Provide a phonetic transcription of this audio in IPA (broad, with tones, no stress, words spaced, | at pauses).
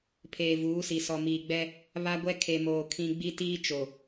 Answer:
pʰeː˨vuː˨˦si˨sɔ˨ miː˨ɡ͡bɛ˦ | βa˦ɡʷɛ˦ kʰe˨moː˨ kʰĩ˦ ɡ͡bi˦tiː˦ t͡ʃo˨